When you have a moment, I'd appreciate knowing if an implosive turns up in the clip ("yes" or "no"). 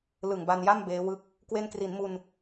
no